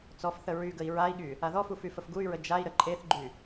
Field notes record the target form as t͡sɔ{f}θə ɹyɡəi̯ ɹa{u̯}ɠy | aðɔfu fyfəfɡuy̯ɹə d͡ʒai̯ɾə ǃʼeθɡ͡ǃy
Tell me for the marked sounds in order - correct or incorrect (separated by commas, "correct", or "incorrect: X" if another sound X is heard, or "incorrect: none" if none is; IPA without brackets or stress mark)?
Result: correct, incorrect: i̯